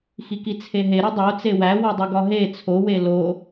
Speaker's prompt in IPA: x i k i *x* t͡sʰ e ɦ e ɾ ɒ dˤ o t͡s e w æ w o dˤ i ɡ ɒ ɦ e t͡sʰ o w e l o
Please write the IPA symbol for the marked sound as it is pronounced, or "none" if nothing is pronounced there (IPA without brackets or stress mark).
none